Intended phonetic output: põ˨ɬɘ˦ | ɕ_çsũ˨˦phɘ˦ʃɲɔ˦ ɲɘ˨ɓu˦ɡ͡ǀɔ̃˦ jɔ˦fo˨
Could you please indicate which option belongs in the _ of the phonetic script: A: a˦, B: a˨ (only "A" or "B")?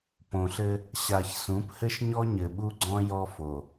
B